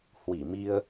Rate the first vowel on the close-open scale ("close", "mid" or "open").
close